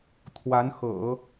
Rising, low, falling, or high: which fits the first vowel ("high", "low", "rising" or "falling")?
rising